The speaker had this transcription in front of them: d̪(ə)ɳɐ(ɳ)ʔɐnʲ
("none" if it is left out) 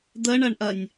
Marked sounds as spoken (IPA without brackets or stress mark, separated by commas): ə, ɳ